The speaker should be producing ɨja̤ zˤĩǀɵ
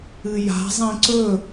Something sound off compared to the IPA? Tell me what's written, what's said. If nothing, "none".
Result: none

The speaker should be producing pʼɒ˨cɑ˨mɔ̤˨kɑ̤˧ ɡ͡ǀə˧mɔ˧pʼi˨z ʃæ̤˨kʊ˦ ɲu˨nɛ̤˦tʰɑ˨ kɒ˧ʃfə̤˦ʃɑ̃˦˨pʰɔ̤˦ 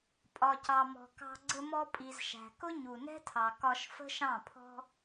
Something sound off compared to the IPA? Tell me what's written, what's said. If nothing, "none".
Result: none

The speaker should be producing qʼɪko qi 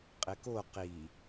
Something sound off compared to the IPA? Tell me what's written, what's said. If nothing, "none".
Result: none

